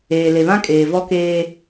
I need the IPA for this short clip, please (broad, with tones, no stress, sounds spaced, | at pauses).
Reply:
eː˨ l e˨ β ã˦ kʼ eː˨ v ɔ˦ k eː˦